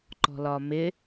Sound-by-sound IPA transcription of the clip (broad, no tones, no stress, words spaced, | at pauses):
ǃɔ̤lɒmɪ